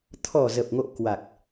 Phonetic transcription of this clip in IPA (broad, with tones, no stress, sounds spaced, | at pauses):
t̪ʰ ɔ˨˩ z ə˨˩ p̚ ŋ o̰˧˨ k w a˨˩ k̚